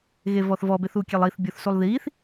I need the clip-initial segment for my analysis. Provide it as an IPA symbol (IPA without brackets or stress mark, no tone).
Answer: ɣ